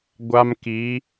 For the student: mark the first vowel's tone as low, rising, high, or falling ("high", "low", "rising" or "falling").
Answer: high